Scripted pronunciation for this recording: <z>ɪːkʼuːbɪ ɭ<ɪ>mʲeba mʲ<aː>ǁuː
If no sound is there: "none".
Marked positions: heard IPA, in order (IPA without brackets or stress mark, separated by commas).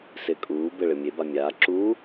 s, ɪ, aː